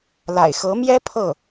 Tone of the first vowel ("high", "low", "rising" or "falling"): low